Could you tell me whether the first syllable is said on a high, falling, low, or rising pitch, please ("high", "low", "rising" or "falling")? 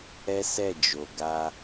high